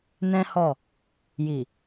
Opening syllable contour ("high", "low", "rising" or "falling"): high